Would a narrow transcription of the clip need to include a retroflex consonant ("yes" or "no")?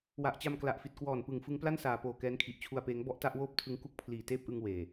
no